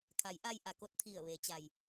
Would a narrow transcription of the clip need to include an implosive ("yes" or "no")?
no